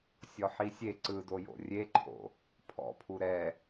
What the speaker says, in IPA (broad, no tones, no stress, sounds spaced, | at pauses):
sʲ ɔ ħ i sʲ e ǀ ɯ d o j o̰ rʲ e ǃʰ o̰ | pʰ ɔ̰ pʰ u ɾ ɛ